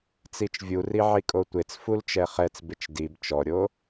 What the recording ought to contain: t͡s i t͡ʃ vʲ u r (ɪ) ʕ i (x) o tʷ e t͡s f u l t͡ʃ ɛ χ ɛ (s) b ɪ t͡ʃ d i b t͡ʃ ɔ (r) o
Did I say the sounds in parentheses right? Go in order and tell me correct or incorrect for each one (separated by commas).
incorrect, incorrect, incorrect, incorrect